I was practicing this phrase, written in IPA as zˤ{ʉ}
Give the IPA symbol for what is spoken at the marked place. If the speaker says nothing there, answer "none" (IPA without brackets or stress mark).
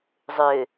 ø